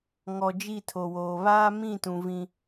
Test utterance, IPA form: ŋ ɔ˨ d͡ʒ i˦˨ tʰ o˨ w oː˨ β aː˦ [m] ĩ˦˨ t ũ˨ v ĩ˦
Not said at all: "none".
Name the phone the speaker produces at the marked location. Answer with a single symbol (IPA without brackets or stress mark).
m